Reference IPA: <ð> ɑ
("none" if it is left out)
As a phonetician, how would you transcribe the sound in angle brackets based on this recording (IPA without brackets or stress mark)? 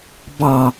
b